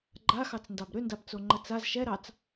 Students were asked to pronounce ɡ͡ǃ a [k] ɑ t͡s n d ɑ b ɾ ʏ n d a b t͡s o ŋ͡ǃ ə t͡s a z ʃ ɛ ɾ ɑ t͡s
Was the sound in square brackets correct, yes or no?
no